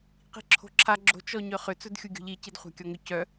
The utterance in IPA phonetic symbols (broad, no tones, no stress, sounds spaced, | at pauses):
q i̤ ǁʰ o̤ ǁʰ a ɡ͡ǁ o̤ t͡ʃ ɔ ɲ œ χ ʏ t͡s ɵ d xʲ u ɡʲ o̤ ʎ i c i d χʷ a̤ kʲ ɔ ŋ ʏ c œ